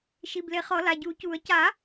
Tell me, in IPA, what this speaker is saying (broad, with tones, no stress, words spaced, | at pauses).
ʃi˩˧˩ble˨˩˦χɔ˨˩˦ la˩˧˩ɟuː˨˩˦cuː˨˩˦ə̯ caː˨˩˦